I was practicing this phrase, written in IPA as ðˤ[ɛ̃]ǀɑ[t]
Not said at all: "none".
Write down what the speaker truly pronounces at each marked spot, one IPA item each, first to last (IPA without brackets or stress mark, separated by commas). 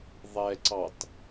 ɛ, t